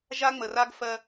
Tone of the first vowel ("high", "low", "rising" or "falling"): high